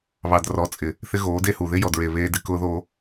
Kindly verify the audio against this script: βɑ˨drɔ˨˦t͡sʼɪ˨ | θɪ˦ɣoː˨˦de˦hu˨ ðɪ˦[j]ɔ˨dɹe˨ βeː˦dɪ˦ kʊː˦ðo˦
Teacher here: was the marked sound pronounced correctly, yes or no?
yes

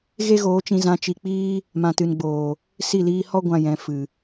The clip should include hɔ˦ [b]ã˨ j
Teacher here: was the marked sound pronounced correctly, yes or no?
no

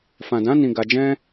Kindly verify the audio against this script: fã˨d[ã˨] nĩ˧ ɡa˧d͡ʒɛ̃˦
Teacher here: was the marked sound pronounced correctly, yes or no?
no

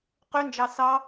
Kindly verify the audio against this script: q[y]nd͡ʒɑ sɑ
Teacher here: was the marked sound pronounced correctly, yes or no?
yes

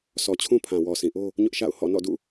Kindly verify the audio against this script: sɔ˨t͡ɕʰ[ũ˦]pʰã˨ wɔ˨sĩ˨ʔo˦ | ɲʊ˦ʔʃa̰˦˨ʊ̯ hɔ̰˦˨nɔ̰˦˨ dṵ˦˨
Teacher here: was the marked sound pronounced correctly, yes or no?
yes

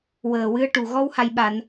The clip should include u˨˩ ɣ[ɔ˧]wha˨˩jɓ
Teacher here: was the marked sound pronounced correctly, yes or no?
yes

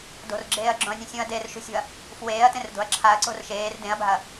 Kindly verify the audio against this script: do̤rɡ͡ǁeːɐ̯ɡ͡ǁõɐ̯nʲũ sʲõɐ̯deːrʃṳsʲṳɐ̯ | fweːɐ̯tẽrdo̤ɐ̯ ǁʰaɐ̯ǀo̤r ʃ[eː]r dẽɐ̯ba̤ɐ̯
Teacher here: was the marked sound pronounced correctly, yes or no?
yes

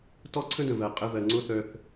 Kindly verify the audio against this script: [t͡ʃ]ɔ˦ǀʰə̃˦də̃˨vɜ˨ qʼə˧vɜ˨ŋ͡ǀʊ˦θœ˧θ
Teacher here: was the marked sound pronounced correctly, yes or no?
no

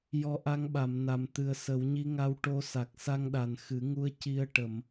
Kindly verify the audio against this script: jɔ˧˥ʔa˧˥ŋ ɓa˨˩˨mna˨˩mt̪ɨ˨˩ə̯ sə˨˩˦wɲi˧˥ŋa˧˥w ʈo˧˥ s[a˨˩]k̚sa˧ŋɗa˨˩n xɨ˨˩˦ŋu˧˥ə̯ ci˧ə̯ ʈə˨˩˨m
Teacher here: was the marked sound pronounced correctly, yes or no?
yes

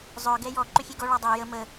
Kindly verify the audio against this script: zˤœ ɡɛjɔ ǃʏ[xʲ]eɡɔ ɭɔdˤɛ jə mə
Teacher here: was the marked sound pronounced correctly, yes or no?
yes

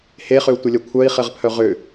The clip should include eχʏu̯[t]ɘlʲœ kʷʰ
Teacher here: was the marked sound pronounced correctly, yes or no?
no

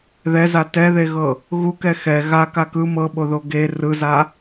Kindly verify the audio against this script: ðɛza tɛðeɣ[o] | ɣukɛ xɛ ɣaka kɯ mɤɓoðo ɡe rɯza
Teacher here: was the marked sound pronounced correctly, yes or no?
no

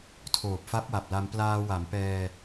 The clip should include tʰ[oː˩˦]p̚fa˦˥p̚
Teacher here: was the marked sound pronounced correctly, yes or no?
no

